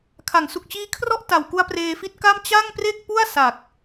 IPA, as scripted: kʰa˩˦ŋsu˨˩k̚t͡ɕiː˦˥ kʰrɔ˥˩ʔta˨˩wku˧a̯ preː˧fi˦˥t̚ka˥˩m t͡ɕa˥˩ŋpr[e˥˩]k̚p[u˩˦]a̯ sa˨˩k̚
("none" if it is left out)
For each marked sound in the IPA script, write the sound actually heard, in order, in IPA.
e˥˩, u˥˩

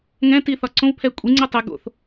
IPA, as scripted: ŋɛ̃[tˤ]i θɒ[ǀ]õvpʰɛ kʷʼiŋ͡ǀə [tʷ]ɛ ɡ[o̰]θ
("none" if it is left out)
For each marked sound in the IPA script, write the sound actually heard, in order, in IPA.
t, ǀ, tˤ, o̰

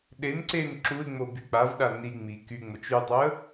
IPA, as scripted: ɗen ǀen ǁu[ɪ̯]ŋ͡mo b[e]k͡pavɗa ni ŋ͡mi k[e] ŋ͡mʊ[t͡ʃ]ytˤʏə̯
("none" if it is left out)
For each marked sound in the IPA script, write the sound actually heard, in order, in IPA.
ɪ̯, y, y, t͡ʃ

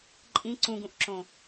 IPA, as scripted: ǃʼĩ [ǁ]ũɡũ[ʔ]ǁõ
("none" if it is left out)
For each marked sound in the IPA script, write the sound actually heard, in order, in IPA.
ǀ, ʔ

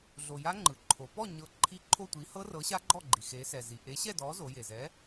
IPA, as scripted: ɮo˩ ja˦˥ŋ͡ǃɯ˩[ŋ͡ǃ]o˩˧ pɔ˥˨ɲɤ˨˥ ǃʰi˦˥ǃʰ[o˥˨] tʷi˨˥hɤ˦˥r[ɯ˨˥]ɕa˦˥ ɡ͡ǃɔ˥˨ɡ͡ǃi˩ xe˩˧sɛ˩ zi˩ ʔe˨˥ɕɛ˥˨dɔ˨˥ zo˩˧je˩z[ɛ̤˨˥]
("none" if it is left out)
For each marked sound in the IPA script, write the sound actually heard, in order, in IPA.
ǃʰ, o˥˨, ɤ˨˥, ɛ˨˥

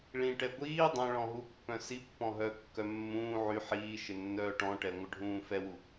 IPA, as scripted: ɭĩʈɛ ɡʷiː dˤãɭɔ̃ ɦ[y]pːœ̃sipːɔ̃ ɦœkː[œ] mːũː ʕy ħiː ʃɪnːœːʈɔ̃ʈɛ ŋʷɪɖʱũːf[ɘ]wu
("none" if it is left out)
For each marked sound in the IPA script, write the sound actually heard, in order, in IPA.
u, œ, ɛ

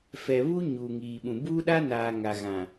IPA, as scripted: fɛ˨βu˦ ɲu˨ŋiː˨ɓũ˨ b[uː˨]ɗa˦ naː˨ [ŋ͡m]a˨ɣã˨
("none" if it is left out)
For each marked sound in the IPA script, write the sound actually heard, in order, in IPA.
uː˦, ŋ

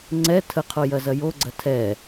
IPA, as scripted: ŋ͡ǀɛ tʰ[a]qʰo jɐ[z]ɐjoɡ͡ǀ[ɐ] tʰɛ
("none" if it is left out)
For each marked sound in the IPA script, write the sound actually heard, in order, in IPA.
ə, z, ɐ

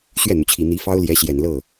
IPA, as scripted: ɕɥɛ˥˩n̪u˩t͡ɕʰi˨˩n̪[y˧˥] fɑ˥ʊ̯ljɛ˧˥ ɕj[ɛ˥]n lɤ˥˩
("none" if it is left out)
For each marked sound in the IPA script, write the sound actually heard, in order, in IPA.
i˧˥, ɛ˨˩

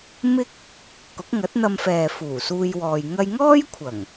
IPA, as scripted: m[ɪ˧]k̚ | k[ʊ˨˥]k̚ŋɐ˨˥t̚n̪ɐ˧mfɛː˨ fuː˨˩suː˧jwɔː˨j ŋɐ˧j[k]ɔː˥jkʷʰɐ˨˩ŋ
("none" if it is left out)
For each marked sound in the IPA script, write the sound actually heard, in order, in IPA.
ɪ˥, ʊ˨˥, ŋ

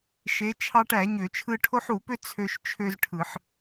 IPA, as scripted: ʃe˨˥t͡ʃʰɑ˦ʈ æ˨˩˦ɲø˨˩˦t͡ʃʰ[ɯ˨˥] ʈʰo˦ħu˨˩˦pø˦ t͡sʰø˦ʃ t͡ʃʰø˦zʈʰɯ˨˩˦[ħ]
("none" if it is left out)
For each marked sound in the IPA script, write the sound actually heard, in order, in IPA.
ɯ˦, ħ

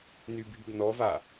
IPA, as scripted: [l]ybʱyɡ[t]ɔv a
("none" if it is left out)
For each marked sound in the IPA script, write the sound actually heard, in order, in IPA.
n, n

